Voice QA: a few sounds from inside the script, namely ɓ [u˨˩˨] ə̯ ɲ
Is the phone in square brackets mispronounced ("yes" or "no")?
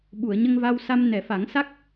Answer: no